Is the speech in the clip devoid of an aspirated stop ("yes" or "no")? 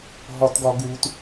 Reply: yes